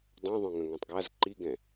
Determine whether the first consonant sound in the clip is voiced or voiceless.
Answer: voiced